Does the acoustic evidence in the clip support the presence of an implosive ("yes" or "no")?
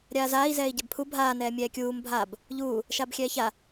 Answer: no